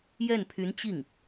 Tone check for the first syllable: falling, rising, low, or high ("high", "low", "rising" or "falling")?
falling